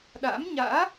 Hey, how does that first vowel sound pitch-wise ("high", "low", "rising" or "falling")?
rising